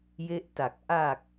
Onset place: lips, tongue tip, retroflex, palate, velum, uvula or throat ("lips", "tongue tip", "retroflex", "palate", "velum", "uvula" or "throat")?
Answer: palate